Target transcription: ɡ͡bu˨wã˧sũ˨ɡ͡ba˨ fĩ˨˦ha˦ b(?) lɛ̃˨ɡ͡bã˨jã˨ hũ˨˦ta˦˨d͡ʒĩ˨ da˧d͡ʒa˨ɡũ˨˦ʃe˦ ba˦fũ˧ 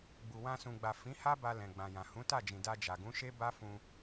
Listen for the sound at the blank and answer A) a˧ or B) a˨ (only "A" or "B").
A